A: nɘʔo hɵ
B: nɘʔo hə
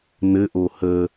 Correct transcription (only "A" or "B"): B